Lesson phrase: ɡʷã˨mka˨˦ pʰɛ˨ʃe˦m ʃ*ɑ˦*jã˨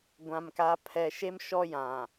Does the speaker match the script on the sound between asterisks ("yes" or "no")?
no